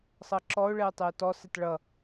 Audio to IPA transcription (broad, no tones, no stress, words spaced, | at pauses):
sˤʌǁɔʊ̯ ɭɛʊ̯tˤɛʊ̯tɔ sɛtɭʌ